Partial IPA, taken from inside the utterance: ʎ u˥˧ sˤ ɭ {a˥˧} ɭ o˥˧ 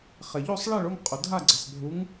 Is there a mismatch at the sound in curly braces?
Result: no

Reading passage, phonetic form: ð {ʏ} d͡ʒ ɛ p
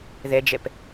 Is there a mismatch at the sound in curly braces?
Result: yes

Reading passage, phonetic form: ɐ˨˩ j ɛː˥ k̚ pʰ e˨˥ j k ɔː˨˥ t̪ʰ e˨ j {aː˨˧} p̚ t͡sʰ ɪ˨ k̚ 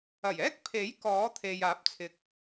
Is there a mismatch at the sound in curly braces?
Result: yes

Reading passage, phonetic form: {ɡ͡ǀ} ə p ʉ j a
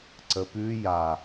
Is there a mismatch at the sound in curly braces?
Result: yes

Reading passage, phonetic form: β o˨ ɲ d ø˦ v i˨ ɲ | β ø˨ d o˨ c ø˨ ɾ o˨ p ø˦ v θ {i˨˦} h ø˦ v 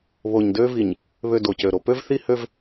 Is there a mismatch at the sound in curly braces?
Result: yes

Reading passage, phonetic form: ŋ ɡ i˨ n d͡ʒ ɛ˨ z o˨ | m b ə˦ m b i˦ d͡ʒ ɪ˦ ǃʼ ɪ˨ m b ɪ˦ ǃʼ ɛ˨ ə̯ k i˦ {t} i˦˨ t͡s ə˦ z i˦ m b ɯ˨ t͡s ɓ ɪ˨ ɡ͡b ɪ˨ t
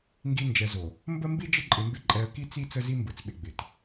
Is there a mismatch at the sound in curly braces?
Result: yes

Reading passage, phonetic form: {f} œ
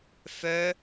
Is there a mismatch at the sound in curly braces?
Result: no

